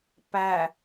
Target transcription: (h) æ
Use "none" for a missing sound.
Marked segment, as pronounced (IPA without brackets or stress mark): p